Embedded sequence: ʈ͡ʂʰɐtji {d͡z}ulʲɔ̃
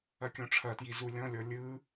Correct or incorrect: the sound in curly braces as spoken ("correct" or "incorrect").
incorrect